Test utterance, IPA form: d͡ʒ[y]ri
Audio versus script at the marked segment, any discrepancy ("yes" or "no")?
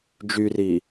no